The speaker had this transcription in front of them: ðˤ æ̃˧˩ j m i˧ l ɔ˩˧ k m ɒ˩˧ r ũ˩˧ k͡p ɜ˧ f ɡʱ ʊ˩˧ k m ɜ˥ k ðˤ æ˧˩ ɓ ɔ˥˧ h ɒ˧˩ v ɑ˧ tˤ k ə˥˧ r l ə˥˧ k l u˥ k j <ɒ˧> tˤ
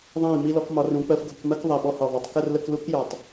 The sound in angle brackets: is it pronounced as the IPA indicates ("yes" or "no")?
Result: no